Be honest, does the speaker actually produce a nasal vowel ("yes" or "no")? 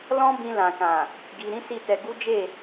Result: yes